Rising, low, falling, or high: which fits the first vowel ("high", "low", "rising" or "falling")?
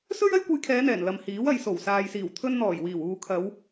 high